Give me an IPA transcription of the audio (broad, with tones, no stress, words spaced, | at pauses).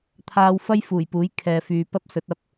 t̪ʰaː˧wfɐ˥jfuː˨˩jpuː˨˥j kʰɛː˨fyː˨ pɐ˥p̚sɵ˨˥t̚ ɐ˧p̚